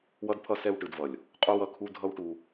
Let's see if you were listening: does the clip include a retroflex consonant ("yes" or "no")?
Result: yes